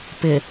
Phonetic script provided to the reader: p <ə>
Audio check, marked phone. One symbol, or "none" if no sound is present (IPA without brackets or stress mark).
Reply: ɪ